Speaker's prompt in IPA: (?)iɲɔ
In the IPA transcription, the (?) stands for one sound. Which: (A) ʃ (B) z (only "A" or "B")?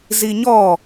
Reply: B